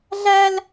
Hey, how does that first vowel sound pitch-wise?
high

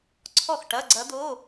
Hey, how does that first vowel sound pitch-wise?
falling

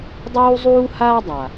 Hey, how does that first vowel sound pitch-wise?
high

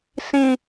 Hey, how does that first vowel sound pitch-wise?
low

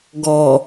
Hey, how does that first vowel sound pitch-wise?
low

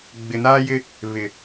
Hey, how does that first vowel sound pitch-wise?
low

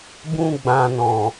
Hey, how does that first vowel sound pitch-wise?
high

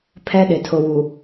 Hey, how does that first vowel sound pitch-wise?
high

